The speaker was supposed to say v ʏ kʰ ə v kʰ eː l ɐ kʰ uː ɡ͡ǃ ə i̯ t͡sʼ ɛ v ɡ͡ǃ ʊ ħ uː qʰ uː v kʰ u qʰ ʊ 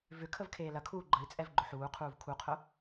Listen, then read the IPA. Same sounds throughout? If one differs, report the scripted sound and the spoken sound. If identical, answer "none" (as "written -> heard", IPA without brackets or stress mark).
none